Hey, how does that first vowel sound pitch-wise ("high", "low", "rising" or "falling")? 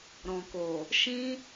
low